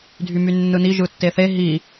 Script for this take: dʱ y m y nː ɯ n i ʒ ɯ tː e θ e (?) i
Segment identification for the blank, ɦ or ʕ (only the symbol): ɦ